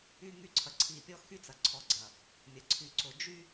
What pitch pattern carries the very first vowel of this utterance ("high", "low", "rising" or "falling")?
high